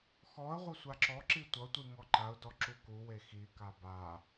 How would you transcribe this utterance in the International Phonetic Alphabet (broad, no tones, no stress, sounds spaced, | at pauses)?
x ɔ ə̯ ʁʷ ʌ sʷ a ǁ ɔ ǁ i tʷ ʌ tʷ i ŋ ɔ ǃ a ʊ̯ d ɔ ǁ u k u w e x i k a b a